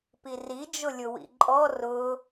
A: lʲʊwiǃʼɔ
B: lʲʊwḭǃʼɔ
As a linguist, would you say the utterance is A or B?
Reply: B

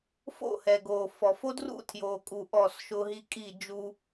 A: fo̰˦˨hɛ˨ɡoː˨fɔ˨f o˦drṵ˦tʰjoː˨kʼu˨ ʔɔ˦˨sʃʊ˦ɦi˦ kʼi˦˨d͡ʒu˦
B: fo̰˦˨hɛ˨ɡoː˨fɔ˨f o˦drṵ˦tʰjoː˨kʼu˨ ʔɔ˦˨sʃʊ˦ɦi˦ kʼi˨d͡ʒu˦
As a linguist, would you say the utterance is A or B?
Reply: A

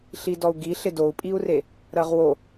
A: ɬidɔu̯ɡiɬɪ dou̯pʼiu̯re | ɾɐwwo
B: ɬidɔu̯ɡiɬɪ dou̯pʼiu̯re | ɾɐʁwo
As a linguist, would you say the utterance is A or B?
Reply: B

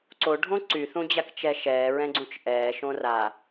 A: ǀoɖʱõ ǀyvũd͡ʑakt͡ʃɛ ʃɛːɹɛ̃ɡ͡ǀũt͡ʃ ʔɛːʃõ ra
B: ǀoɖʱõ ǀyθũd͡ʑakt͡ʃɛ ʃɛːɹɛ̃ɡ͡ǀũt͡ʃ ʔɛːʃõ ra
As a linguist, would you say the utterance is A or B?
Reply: B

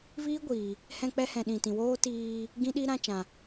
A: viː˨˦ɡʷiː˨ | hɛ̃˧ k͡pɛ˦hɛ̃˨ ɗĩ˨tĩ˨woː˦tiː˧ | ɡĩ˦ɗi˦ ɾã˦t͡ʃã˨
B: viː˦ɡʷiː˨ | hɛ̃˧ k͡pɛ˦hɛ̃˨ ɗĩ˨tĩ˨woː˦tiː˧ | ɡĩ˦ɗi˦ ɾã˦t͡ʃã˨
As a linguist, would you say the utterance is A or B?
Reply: B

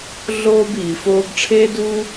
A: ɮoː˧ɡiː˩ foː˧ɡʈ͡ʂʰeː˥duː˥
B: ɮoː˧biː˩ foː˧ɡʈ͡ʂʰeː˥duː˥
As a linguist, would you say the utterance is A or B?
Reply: B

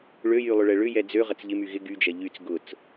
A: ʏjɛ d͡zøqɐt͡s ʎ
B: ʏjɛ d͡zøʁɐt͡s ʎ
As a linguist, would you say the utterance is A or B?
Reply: B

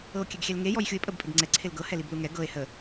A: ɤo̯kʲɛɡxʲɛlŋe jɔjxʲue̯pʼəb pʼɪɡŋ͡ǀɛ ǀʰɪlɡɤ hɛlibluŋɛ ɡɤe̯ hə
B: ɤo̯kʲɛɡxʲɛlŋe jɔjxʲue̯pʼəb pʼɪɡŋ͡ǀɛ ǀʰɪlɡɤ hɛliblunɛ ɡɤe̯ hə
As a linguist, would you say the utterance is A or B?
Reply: A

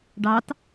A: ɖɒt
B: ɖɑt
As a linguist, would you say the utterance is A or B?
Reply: B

